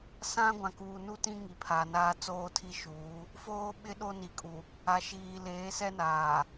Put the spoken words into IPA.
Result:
s ã˦ ɡʷ ã˨ k uː˨ n u˦ t ĩ˦ ŋ i˨ pʰ aː˨ n aː˦ t͡s oː˦ tʰ i˦ ʃ uː˨˦ | f oː˦ ɓ ɪ˦ ɗ o˦ n i˨ kʼ u˨ | a˨ ʃ iː˨ l eː˨˦ s ɛ˦ n aː˨

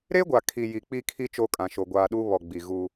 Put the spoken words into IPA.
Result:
ɾ e˦ ɡʷ a˨ kʰ i˨ j i˨ k͡p i˦ kʰ i˦ t͡ʃ o˦ kʼ ã˨ ʃ o˨ ɡʷ aː˨ ɗ u˦ β ɔ˨ ɡ͡b i˨ ɣ u˦

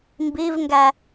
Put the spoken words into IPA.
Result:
m b i v ŋ ɡ æ

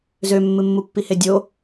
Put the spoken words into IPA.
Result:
z ø mː ɨ mː u pː i h e dʲ o

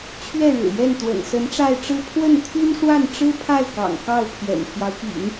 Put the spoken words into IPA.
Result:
t͡ɕʰ ɥ ɛ˥˩ ɻ ɻ̩˨˩ j ɛ˥˩ n t̪ w ə̰˨˩ n s ə˧˥ n ʈ͡ʂ a˥˧ ɪ̯ ʈ͡ʂ ɻ̩˥˧ pʰ w ə˥˩ n t̪ʰ y˥ n ʂ w a˥˩ n ʈ͡ʂ ɻ̩˥ pʰ a˥˩ ɪ̯ k ɑ̰˨˩ ŋ k ɑ˥˩ ʊ̯ pʰ j ɛ̰˨˩ n pʰ j ɑ˦ ʊ̯ p ḭ˨˩˦ ŋ

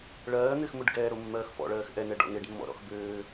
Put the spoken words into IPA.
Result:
ɭ ɜː n̪ ɪː x m ʊ ɖ ɡ ɛː ɾ o mː ɜː x f ɔ̰ ɭ ɜː x ʔ ɛ n ɛ ɖ ɔ̰ n̪ e ɖ mː ɔ̰ ɾ ɔ̰ x b øː

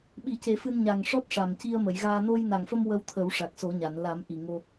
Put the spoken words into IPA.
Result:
ɓ i˨˩˦ c e˨˩˦ f ɨ˧ n ɲ a˨˩ ŋ ʂ ɔ˦˥ t̚ ʂ a˨˩ m c i˧ ə̯ m ə˨˩˨ j ɣ aː˧ n o˧ j n a˨˩ ŋ f ə˧ m w ə˧ w t̪ʰ ə˨˩˦ w ʂ a˨˩ k̚ s o˨˩˦ ɲ a˨˩˨ n l a˨˩˦ m ʔ i˨˩ ŋ o˧

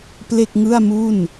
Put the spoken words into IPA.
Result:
p l e˥˩ k̚ ŋ ɯ˥˩ a̯ m u˥˩ n

